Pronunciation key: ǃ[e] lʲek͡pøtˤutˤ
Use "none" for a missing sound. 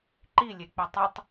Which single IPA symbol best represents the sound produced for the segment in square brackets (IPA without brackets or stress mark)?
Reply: i